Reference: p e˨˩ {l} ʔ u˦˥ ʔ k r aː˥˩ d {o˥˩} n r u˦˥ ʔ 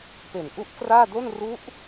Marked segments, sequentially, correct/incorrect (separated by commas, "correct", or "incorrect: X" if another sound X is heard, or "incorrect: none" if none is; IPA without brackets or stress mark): incorrect: n, correct